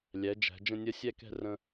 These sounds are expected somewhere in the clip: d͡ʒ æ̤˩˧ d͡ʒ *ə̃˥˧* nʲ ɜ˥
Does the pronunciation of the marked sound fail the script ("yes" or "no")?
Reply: no